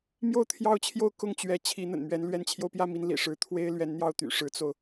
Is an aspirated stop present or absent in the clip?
present